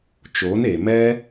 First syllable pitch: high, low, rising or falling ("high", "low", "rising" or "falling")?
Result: rising